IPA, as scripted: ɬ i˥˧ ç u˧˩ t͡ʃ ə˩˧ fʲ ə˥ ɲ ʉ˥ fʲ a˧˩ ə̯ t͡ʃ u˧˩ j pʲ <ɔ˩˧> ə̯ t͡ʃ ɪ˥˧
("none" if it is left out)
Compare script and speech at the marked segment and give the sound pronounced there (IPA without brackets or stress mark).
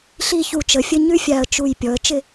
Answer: ɔ˩˧